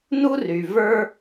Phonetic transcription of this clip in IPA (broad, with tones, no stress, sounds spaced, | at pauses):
n u˦ r y˨ v ə˞˦